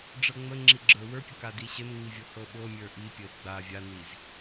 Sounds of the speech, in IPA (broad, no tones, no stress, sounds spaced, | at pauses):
ɖ͡ʐ ɤ ŋ͡m ə ŋ͡ǁ i ɡ͡ǁ ə˞ w ə˞ pʲ ə k a d i ɕ ə n ŋ͡m i vʲ ɤ h ɤ ɓ ɤ mʲ ə˞ ʔ i pʲ ə ɪ̯ ɡ͡b a vʲ a n i z